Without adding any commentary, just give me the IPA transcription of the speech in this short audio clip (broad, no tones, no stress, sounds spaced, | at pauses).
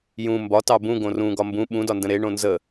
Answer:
j ũ m b ɒ t ɑ b ũ ɡ õ r ũ ɡ ɒ m b ũ ɓ ũ d ɒ n d ə̃ ɾ e ɳ õ n z ə